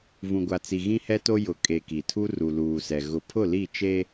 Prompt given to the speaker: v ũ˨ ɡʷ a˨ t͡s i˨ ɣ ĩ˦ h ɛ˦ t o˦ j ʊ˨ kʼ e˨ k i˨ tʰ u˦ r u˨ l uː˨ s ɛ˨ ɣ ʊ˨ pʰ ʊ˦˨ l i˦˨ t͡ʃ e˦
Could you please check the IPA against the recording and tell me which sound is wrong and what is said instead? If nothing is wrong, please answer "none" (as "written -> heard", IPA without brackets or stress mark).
none